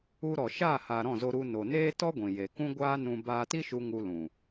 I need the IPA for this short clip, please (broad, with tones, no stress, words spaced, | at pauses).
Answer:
u˧ɾɔ˨ ʃaː˦˨haː˨ ɾɔ̃˦˨zo˧ ɾu˧ no˨ neː˦tɔ˦ɡʷĩ˨ je˨kũ˦ɡʷaː˦nũ˧ baː˧ti˦ʃu˧ ŋu˧lũ˨